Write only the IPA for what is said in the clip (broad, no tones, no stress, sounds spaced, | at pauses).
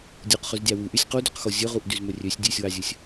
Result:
dʲ u q χ ʉ z dʲ ɑ w u ʔ y sʲ q u d y q x o zʲ ɵ ʁ u ʔ d y z m ɵ rʲ ø sʲ dʲ ʉ sʲ w ɑ zʲ ɵ sʲ